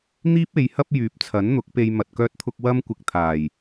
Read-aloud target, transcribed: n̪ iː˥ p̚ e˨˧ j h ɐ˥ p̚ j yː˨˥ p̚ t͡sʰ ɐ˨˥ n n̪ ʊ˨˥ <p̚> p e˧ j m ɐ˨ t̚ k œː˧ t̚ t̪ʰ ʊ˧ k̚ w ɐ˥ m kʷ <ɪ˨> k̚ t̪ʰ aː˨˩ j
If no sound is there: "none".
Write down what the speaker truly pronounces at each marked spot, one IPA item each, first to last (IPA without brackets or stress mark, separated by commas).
k̚, ɪ˧